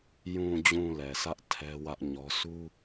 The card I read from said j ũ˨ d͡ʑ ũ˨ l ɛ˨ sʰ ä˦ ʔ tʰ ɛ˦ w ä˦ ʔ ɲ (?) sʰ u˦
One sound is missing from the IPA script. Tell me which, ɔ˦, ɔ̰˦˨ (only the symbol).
ɔ˦